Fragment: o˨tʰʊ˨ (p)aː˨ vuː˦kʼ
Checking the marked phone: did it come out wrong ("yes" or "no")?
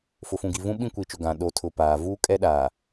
no